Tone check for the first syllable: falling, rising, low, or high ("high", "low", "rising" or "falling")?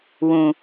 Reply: low